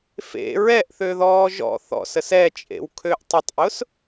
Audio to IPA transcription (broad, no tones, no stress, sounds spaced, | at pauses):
f ḛ ɹ ɛ ʔ θ ø ð ɔː ʒ ɔ̰ θ ɔ̰ s ə s ɛ t͡ʃʼ ḛ w kʰ ø ʔ tˤ ʊ tˤ ʔ ʊ s